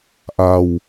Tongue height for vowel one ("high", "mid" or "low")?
low